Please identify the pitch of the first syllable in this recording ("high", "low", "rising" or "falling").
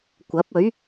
rising